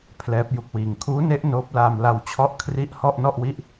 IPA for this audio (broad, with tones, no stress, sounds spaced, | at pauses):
pʰ l ɛː˦˥ p̚ j u˦˥ k̚ w iː˧ ŋ kʰ uː˦˥ n e˦˥ ʔ n oː˦˥ p̚ l aː˧ m l a˧ w t͡ɕʰ ɔ˦˥ ʔ kʰ r i˦˥ ʔ h ɔ˥˩ ʔ n ɔ˥˩ ʔ w i˥˩ ʔ